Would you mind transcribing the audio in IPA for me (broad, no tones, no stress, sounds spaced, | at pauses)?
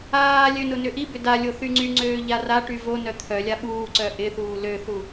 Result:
aː lʲ ø n ʊ n ʏ ʔ i b ʏ d a lʲ o θ y ŋ͡ǀ y ŋ͡ǀ øː ʎ a r a ʈ y v o n œ t̪ʰ œ lʲ a ɓ uː ǀ œ ʔ ɪ θ uː l ø θ u